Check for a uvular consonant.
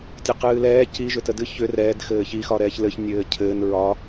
present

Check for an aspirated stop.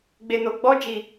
absent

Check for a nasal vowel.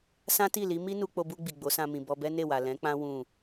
present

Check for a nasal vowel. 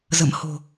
absent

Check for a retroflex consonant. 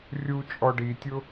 present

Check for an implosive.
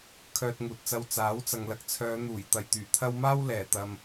absent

